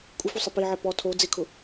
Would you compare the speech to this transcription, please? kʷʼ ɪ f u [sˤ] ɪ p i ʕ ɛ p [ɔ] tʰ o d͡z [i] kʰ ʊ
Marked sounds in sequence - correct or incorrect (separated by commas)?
correct, correct, incorrect